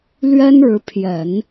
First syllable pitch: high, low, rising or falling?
high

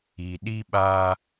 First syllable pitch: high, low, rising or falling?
low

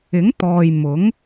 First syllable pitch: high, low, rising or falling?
rising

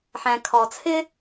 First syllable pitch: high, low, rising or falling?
low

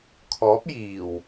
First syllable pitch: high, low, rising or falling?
rising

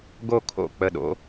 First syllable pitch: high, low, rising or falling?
falling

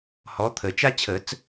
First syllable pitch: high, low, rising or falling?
rising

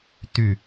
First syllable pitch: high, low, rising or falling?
falling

